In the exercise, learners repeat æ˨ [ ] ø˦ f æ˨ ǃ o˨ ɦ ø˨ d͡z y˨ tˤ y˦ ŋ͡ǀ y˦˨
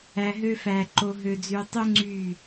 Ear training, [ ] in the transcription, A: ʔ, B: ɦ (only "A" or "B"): B